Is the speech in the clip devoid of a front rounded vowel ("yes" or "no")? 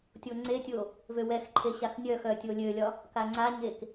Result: no